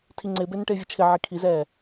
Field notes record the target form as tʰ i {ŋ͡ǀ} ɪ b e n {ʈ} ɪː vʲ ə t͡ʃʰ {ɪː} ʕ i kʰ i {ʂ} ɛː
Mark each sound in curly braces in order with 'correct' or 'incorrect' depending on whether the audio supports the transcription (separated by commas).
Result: correct, correct, incorrect, incorrect